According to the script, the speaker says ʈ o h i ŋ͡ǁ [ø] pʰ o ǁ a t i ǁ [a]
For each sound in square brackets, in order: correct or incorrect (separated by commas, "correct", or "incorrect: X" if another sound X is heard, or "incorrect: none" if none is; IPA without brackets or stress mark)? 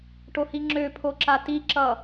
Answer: correct, incorrect: ʌ